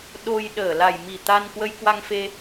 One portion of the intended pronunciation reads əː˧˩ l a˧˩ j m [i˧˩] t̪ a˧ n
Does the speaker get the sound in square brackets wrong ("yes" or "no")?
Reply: no